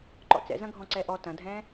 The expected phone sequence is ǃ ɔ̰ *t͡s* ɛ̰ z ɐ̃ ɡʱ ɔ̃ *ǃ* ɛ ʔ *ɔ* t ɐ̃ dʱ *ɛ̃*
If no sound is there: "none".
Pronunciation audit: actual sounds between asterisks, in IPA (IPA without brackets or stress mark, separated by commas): t͡s, ǀ, ɔ, ɛ̃